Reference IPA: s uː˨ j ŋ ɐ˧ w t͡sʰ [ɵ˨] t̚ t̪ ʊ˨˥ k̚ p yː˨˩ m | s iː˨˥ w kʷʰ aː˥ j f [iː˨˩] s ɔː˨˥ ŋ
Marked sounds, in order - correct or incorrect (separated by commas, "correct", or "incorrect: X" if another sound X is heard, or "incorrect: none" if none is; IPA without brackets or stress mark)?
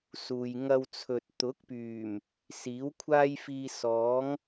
correct, incorrect: iː˧